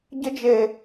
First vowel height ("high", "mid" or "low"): mid